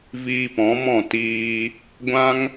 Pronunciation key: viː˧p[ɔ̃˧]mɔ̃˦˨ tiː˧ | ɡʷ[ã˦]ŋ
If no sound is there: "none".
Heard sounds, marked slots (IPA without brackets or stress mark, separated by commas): ɔ̃˨˦, ã˦